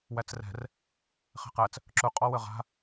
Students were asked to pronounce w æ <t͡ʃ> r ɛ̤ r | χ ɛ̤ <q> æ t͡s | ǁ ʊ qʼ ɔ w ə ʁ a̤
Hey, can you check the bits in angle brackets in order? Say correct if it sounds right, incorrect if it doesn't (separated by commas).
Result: incorrect, correct